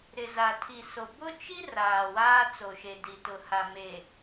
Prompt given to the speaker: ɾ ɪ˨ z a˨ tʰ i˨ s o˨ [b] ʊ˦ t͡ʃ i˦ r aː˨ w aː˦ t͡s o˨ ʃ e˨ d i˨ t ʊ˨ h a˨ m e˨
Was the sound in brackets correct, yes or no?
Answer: yes